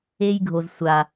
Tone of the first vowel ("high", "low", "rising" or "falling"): high